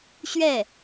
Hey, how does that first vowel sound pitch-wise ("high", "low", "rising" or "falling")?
falling